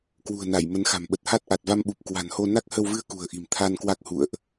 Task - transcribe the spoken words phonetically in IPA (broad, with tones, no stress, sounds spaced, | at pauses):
k w ṳ˨˩ ə̯ n a˧˩ j m ə˨˦ n x a̤˨˩ m ɓ ə˨˩ t̚ h a˦˥ t̚ ʔ a˨˩ t̚ v a˧ m ɓ u˨˩ p̚ k w a̤˨˩ n h o˧ n a˦˥ k̚ h ə˧ w v ɨ˧ ə̯ k ṳ˨˩ ə̯ ʔ i̤˨˩ m t̪ʰ a˧ n k w a˦˥ k̚ h ṵ˧˨ ə̯ ʔ